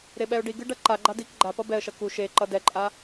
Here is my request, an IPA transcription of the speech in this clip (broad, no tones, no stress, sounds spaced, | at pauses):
ɾ e ɓ ɛ ʊ̯ ɖ i ɡ ɯ ɖ ʌ ǃ a ɡ͡ǃ a d i k ɡ͡ǃ a p ʌ b ɛ ə̯ ʃ ʌ k u ʃ e ǃ ʌ d ɛ ǃʼ a